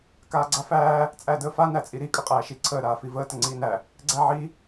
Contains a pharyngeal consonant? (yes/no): yes